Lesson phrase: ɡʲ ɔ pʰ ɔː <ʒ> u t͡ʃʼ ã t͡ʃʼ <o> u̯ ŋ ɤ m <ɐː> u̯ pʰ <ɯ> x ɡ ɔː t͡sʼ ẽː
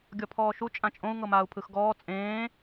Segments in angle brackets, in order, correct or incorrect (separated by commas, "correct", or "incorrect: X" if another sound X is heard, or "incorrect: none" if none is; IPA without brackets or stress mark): incorrect: ʃ, incorrect: õ, incorrect: aː, correct